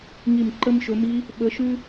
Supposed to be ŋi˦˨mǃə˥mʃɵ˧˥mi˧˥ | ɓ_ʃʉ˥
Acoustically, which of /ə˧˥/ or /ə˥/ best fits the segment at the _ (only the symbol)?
ə˧˥